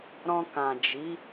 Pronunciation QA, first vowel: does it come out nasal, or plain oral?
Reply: nasal